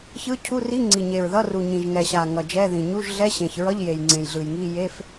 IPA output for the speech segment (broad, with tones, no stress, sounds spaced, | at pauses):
ç ɯ˧˥˧ cʰ u˧˥˧ r i˧˥˧ ŋ͡ǀ i˨˩ ɲ e˨˩ ɹ ð ʌ˧˥˧ r u˨˩ ɲ ĩ˨˩ ʒ ŋ ɛ˨˩ ɕ a˨˩ ŋ ʌ˨˩ d͡ʒ ɛ˧˥˧ ð ĩ˨˩ ɲ u˧˥˧ ʒ ɮ ɛ˧˥˧ ɕ ẽ˨˩ ç ɹ ʌ˧˥˧ ʎ j e˨˩ j ŋ͡ǀ ẽ˨˩ j ɮ ɯ˨˩ j ŋ i˧˥˧ j e˧˥˧ f